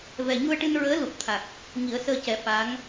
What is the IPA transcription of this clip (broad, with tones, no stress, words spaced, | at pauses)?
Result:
vɛ˨˩ɲu˧ə̯ʈɨ˧n ɹəː˧˥ lu˨˩p̚t̪ʰa˨˩k̚ | ŋi˨˩˦ə̯səː˧cɛ˨˩˦ fa˧˥ŋ